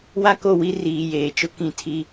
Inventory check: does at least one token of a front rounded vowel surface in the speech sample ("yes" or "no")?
no